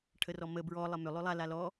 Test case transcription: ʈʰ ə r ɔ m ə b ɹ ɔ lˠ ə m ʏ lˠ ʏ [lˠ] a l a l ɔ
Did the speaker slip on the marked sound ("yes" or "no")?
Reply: no